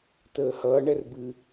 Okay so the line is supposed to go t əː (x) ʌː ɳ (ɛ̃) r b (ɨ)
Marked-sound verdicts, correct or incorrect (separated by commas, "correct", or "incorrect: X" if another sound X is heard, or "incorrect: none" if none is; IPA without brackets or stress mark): incorrect: h, incorrect: ɛ, correct